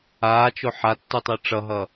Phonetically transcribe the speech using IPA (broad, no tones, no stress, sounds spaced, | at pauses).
aː t͡ʃ o ħ a tː u tˤ ɯ ʈ͡ʂ ʌ ɦ ʌ